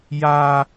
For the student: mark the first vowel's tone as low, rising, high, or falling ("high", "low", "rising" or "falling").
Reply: high